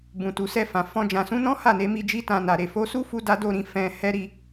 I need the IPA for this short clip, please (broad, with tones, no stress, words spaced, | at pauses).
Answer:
bũ˨tu˨sɛ˧fã˨ fɔ̃˧ d͡ʒã˨sũ˨˦nɔ̃˦ ha˦˨ne˨˦mi˧ d͡ʒi˦tã˧na˨ ɾe˨fo˨˦su˦ fu˦da˦do˦˨ɾĩ˨˦ fɛ̃˧ hɛ˦ɾi˧